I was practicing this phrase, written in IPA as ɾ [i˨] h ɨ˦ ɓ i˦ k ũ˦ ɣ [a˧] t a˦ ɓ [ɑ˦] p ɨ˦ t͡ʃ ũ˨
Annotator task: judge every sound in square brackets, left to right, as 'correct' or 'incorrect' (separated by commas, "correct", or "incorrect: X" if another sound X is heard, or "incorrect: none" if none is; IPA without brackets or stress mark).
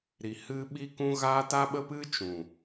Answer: incorrect: i˧, incorrect: a˦, incorrect: ə˦